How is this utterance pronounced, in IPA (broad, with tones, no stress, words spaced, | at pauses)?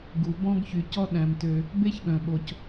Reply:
ɡu˩bɔ̃˥ɡçy˩cɔ˥ ɗæ̃˩mtø˩ | be˥ç ɠœ̃˩ɓo˩c